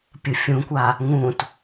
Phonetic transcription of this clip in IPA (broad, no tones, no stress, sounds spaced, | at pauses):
pʲ ɯ fʲ ũ kʷ a | ŋ ũ t